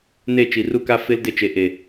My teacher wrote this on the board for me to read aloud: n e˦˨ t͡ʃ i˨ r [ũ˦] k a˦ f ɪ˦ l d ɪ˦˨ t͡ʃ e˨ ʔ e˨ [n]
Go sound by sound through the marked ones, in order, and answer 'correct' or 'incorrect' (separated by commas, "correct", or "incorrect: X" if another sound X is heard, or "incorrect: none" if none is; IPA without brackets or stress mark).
incorrect: u˦, incorrect: none